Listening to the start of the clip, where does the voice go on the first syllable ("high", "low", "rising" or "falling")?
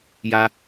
high